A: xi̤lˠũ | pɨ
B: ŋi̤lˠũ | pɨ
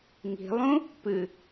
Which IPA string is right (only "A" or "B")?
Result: B